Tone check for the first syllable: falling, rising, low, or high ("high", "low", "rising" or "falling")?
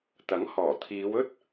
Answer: rising